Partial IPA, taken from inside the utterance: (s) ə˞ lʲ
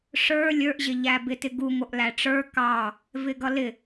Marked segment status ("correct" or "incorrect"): incorrect